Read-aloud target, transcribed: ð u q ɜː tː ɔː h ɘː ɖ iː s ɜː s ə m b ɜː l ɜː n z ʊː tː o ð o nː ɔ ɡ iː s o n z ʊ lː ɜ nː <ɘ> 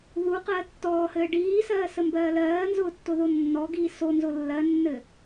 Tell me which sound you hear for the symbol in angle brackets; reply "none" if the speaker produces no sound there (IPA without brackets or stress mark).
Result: ɘ